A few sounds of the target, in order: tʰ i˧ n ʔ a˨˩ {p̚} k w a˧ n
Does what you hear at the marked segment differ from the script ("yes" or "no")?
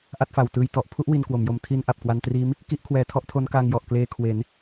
no